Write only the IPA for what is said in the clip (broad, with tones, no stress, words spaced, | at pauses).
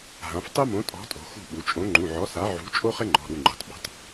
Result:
ɦã˩˧f tˤu˥mõ˨˥ tʼɔ̤˨˥tʼo̤˩˧ xṳ˦˨ɓu˩˧t͡ʃʼõ˨˥ ŋ͡ǃũ˩˧˩ʕɔ˨˥sa˨˥ ʕṳ˨˥ t͡ʃʼo˥χɪ˥ŋ͡ǃɔ̤˩˧˩ɾu˦˨ ŋ͡ǃṳ˩˧tˤ ɓṳ˩˧tˤ